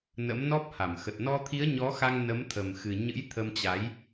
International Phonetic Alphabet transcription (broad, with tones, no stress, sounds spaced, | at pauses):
n ə̰˧˥ m n ɔ˦˥ p̚ h a˧˩ m x ə˨˩ t̚ n ɔ˧ t̪ʰ i˨˦ ə̯ ɲ ɔ˨˦ x a˧ ŋ n ə˨˦ m t̪ʰ ə˨˩ m x ɨ˨˩ ɲ ɨ̰˧˥ j t̪ʰ ə˧ m t͡ɕ a˨˦ j